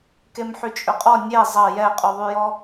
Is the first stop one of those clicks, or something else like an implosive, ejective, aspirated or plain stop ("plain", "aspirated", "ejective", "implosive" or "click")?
plain